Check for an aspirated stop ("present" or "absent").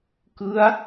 absent